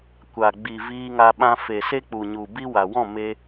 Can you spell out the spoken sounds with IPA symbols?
kʷ a˨ ɡ͡b i˨ v iː˧ ŋ a˧ ɓ ã˧ f e˨ s e˦ k͡p u˨ ɲ u˨ b i˦ w a˨ w ɔ̃˦˨ m e˧

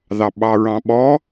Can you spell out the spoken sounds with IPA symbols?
ð ɑ ɓ ɑ ɹ ɑ̃ ɓ ɔ

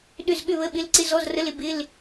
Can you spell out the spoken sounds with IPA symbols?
ɗ ʏ˥˧ z ɠ ʏ˥˧ β ə˧˥˧ ɓ ɪ˧˥˧ l ǀ ɪ˧˥˧ z ɔ˧˥˧ z r ə˧˥˧ l ɪ˥˧ b ɪ˧˥˧ l

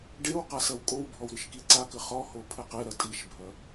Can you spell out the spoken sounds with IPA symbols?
ɖ e w q a s ɐ w kʼ o w bʱ ɔ w ɾ ɨ ʃ k i ǀ a k ɘ χ ɔ h o pʰ ɘ q e ɾ ɐ tʼ i ʃ bʱ ɐ

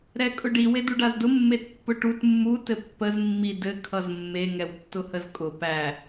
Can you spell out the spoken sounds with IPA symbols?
ɾ ɛ kʼ ʊ ɖ i w e d u ɖ a z d ʊ mː e t pː ʊ ʈ u t mː u t ɘ pː ə z mː i d ɘ kʰ ʌ z mː e ŋ ɛ w tː ʊ h ə z kʼ ʊ p æ

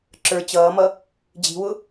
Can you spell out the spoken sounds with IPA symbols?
ǁ ə˞ t͡ɕ ʌː m ʌ | d͡ʑ i̤ w ʊ

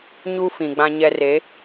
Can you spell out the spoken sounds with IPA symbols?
ɲ u˦ f ĩ˨ ɡ͡b ã˦ ɲ ɛ˦ r e˨˦

